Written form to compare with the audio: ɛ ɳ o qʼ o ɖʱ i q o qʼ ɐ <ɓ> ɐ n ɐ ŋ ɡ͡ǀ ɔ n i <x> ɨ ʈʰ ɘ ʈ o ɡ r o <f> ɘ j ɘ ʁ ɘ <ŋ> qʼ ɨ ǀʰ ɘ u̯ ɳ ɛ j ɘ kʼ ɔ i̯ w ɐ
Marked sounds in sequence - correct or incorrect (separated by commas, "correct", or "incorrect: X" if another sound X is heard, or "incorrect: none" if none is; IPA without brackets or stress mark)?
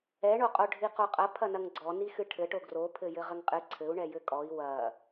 incorrect: pʰ, correct, incorrect: pʰ, correct